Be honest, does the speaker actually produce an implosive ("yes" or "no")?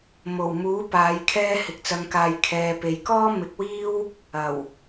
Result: no